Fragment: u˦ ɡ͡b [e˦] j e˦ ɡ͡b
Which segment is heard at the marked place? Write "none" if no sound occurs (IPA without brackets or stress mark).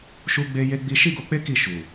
e˦